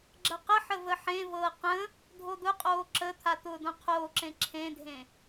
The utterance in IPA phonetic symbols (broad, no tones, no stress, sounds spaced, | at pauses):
ɡ͡ǁ ɐ q ə ħ ə v ə ħ ẽ v ɤː q ə̃ | dʱ o d̪ ʊ qʼ oː ǁ ə t̪ʰ a t̪ ʊː d õ qʰ oː ǁ ẽ ǁʰ ẽ dʱ ẽ